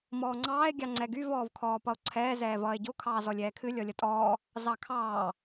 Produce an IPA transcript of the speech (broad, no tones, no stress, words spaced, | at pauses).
mɔːŋ͡ǀɑːe̯ ɡʲɑŋ͡ǀɛɡyv ɔːvkʰɔːpʌo̯ǀʰɛː zɛːvʌːe̯ɟo kʰɑːzɔlʲɛːkʰɨ lʲɔlʲʌtʼɔː | zɑkʰɑː